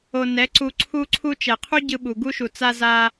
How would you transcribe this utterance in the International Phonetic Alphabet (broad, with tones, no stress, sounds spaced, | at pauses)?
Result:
o˨ n ɛ˨˦ ǀ u˧ ǀʰ u˧ ǀʰ u˧ t͡ʃ ɛ˨ qʰ u˦ ɟ ɯ˧ ɓ u˨ ɡ u˦ ʃ u˨ t͡s a˧ z a˧